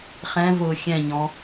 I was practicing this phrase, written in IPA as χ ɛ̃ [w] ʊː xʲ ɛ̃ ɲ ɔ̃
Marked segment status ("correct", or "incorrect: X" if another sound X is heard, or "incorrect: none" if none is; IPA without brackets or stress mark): incorrect: v